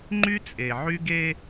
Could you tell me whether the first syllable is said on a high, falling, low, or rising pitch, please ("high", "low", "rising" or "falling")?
high